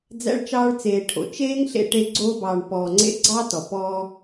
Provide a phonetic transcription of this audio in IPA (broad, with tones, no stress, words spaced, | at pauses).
d͡zæ̰˧ɭt͡ʃɑː˧ɭt͡seː˨ʈʰo̰˨ t͡ʃeː˦ŋɬḛ˧ʈe˧ ɡ͡ǀoː˧bɑː˨ɳ pɔː˨ŋ͡ǀḛ˧ ɡ͡ǀɑ˦ tɔ˨pɔː˦